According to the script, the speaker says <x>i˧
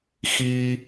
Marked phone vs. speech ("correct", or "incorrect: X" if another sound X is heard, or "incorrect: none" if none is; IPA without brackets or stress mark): correct